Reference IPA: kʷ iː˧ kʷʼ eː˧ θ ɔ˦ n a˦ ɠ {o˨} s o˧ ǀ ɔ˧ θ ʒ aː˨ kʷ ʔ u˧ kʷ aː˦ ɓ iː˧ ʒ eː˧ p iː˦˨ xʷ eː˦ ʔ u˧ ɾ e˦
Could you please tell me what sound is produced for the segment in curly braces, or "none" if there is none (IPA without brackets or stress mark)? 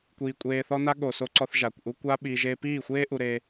o˨